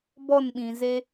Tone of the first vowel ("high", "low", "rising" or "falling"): falling